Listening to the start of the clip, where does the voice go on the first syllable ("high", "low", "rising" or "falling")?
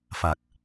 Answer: low